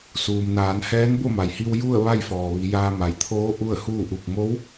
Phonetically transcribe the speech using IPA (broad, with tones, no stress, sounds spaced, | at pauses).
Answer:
s uː˩ m n aː˩˧ n h ɛː˧˥ n b o˥˨ m a˩ j h i˧ w j u˥˨ ə̯ ʋ a˥˨ j f ɔː˩ ʋ i˩˧ j aː˧ m a˩ j t̪ʰ oː˧˥ ʔ u˥˨ ə̯ h uː˥˨ ʔ u˧˩ k̚ m o˧˥ w